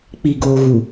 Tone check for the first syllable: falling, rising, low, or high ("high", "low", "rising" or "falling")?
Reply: low